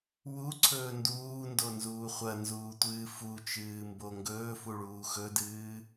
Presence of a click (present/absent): present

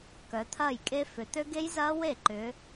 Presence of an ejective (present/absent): present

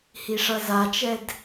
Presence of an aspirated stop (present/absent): absent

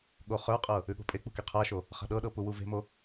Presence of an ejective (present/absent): present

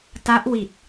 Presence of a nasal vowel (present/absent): absent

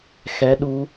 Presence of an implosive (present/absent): present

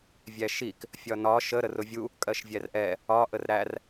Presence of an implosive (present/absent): absent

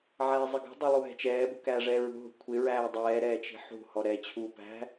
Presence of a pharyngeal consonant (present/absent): present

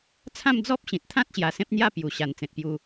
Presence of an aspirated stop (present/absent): present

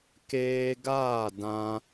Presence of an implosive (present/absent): absent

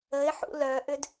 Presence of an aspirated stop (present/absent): absent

